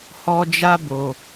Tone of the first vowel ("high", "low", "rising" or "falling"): high